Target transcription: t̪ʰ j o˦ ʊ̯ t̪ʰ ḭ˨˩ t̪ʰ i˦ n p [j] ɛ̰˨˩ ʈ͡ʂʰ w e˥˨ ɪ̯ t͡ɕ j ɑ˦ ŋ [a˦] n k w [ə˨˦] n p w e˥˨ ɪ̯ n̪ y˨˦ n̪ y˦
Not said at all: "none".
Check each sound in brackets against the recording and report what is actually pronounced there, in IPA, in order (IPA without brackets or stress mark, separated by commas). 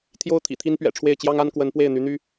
ɥ, a˦, ə˨˦